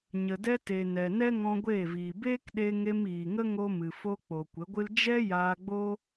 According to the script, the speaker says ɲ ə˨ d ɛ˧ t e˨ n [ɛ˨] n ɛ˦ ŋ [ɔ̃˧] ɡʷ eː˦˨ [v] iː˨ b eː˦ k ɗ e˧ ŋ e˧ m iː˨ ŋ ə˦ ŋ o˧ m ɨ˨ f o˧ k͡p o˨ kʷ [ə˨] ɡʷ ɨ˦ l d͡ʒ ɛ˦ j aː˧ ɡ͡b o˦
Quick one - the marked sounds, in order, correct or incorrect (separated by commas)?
correct, correct, correct, incorrect